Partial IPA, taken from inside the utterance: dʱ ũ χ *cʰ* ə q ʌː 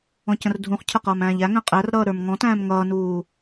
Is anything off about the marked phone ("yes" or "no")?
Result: no